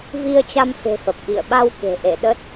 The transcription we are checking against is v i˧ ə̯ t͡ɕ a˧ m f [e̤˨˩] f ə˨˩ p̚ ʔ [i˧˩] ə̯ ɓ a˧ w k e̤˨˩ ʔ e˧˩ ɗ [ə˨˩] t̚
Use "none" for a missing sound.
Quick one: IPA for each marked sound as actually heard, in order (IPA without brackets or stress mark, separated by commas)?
e̤˨˩, ḭ˧˨, ə˦˥